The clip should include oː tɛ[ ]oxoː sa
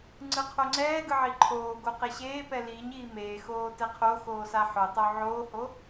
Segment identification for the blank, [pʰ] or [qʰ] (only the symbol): qʰ